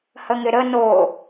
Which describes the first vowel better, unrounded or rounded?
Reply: unrounded